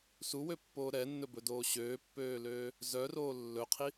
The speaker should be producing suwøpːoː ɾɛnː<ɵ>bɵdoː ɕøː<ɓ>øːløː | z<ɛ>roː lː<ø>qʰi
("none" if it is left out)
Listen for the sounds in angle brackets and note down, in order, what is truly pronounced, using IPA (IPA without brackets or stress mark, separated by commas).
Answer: ɵ, pː, œ, ɵ